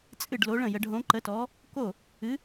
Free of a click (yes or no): no